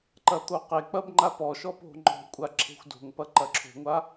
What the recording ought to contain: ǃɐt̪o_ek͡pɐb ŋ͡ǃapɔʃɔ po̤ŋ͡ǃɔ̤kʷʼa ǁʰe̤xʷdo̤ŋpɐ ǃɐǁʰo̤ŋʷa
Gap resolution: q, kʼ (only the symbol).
q